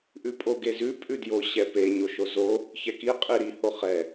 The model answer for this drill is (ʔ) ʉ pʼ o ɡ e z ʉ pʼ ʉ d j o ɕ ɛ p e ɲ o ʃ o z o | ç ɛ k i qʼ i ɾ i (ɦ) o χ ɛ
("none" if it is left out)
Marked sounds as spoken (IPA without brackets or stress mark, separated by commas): ʔ, h